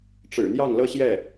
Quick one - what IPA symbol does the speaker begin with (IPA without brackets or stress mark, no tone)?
ʈ͡ʂ